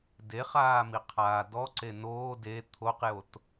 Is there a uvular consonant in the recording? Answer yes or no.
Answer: yes